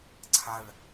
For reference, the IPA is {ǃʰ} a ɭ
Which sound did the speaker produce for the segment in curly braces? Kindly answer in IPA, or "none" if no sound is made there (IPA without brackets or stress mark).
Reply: ǀʰ